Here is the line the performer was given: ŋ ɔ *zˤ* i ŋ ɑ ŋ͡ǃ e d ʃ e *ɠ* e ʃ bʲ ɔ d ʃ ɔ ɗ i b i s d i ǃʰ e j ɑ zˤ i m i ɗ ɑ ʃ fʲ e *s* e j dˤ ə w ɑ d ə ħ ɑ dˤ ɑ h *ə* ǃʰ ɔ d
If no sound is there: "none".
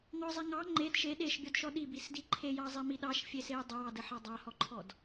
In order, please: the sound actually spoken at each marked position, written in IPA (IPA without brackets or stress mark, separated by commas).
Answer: zˤ, ɗ, s, ɔ